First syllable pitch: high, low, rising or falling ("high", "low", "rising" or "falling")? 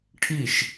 falling